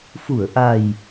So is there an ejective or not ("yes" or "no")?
no